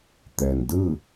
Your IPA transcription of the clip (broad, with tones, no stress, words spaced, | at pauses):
t̪ɛː˩ndɯː˥˨